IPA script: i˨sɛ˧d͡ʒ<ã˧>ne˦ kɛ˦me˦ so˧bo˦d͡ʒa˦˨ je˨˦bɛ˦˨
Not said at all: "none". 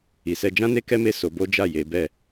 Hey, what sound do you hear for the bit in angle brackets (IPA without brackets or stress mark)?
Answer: ã˦